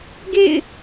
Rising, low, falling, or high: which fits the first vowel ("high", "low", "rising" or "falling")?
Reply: falling